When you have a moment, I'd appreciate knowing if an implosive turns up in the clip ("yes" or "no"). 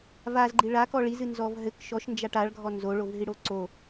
no